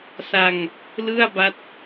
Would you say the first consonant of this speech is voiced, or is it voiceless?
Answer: voiceless